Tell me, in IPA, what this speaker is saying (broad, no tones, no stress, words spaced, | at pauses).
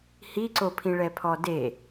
hiǀopʰĩ ɭɛpʰɔde